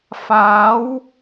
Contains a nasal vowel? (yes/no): no